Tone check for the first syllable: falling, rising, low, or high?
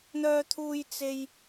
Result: high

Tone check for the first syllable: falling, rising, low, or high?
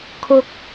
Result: high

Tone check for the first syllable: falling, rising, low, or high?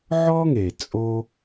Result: high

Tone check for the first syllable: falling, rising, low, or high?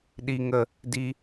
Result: low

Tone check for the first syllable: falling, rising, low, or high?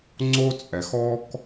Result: high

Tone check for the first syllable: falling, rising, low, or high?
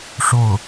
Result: falling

